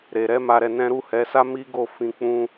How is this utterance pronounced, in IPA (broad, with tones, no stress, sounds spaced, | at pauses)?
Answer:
ɾ e˨ ɾ ɛ˨˦ m a˧ ɾ ɛ˧ n ɛ̃˦ ɾ u˦˨ h ɛ˨˦ s a˦ m i˦ ɡ o˦˨ f ĩ˧ k͡p ũ˦